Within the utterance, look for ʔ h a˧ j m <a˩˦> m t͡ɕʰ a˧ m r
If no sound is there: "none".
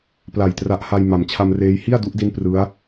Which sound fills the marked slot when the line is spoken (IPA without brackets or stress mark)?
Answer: a˩˦